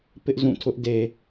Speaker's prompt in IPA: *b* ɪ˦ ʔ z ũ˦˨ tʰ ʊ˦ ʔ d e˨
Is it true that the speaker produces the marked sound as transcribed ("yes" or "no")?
no